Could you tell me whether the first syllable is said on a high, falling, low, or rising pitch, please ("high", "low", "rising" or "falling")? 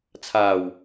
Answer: low